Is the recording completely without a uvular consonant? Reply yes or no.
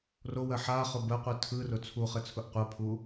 no